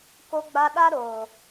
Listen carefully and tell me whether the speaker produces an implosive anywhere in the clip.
yes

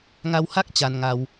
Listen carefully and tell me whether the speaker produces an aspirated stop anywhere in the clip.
no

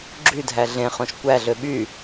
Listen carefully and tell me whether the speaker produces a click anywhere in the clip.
yes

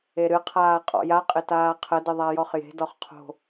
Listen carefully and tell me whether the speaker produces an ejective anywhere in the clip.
yes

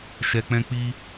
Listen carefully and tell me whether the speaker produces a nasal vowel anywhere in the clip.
yes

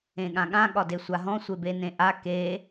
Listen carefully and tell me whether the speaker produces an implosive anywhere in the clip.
yes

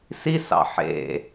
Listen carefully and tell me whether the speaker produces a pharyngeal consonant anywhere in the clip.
yes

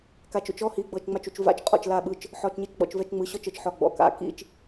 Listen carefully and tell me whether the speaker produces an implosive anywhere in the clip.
yes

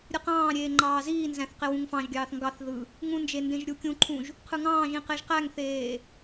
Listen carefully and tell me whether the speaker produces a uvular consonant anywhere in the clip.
yes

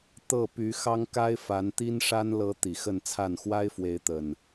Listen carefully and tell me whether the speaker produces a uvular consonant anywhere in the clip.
no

